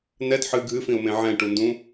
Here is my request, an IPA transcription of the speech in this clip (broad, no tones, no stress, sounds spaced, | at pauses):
n ɛ d ħ ɨ ɡʱ ɨ f ĩ ʊ̯ m ẽ ʕ ɛ̃ ʈ u n d ũ